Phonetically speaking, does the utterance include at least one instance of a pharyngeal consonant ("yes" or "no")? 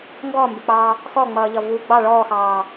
no